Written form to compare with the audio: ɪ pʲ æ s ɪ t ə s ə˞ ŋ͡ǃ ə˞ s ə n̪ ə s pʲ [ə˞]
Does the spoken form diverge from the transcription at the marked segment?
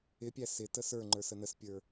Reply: no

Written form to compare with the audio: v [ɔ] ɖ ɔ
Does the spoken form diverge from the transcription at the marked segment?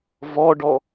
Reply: no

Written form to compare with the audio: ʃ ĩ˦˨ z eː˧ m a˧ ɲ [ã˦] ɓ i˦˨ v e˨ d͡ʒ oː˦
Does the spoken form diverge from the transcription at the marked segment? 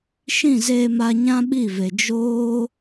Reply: no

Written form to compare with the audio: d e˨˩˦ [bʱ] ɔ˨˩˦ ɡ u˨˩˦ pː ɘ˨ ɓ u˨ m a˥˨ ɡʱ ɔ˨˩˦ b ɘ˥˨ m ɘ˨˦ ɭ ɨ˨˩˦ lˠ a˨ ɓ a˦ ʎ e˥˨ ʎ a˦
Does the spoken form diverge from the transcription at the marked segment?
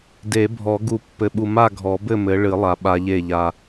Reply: no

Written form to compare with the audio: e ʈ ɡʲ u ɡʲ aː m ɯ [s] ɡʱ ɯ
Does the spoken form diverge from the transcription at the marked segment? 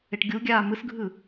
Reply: no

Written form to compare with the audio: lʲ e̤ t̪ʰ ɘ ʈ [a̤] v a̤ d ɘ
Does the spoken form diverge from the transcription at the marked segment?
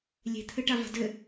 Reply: yes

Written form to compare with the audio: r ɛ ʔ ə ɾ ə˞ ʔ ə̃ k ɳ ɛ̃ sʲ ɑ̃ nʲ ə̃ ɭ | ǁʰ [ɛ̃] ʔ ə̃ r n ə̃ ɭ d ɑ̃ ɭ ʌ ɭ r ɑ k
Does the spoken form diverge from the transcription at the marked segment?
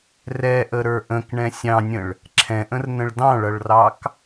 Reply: no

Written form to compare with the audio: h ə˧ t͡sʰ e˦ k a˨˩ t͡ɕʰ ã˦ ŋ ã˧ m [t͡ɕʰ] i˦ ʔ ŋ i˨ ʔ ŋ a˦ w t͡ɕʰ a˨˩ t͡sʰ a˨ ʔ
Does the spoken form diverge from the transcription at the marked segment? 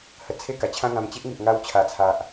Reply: yes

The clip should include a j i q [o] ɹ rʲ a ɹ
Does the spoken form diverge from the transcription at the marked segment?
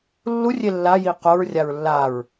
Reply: no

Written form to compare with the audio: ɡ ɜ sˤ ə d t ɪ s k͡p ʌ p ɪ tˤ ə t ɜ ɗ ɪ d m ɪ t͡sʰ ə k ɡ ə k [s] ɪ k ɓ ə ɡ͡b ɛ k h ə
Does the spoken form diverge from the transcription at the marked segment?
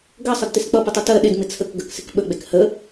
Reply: no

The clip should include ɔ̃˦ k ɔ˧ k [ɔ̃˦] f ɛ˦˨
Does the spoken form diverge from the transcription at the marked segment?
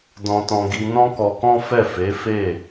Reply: no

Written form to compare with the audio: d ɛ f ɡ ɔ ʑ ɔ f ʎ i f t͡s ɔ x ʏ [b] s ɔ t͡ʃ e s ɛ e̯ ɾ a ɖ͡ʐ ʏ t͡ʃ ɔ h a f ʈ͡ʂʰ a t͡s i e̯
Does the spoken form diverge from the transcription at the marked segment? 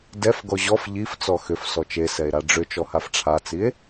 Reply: yes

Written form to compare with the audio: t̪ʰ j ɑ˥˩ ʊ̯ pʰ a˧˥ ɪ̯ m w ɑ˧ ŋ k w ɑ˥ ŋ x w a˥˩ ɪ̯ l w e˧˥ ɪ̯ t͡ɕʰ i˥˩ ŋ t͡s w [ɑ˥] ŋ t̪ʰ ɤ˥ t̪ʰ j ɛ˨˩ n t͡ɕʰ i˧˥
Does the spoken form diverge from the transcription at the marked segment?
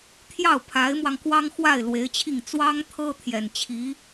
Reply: no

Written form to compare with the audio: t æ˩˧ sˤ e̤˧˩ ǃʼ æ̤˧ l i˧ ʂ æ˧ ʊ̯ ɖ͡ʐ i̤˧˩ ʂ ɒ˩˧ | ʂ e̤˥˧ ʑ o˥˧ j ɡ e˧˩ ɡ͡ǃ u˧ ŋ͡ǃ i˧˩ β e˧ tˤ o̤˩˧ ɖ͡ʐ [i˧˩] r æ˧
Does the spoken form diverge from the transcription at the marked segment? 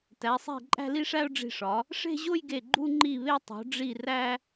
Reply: no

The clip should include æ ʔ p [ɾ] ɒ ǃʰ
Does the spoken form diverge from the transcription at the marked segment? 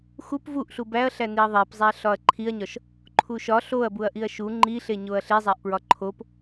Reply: yes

